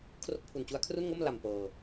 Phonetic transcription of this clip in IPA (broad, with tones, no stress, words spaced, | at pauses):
kʰro˥˩k̚pʰu˨˩nt͡ɕu˦˥a̯ kʰru˥˩nŋo˥˩m la˨˩m pɤː˧